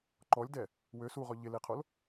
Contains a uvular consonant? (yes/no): yes